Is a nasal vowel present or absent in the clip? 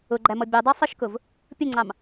absent